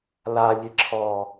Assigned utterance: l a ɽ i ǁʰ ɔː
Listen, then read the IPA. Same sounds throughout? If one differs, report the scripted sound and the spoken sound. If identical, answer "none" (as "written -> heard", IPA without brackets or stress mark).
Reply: ɽ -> ʎ